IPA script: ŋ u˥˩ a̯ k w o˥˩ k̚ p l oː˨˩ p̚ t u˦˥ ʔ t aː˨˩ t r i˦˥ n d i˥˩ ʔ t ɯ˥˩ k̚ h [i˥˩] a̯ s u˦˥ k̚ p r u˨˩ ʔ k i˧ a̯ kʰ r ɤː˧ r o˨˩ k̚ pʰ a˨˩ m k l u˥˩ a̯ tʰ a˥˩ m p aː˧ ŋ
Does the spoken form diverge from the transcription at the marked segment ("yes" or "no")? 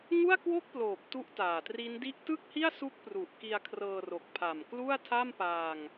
no